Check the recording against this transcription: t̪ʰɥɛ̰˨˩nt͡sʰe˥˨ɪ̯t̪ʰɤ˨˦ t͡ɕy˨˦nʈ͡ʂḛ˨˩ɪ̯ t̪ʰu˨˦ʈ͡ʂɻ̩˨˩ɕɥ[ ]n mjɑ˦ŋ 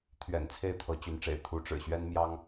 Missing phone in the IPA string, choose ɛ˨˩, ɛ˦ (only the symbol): ɛ˦